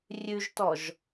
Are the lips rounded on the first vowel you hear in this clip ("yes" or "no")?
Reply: yes